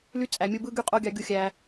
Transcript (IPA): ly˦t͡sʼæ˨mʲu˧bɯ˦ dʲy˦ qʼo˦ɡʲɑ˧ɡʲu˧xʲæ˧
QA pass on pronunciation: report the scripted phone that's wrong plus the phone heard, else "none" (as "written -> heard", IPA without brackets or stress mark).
dʲ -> ɡ